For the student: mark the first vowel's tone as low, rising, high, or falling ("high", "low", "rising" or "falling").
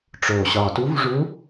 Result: low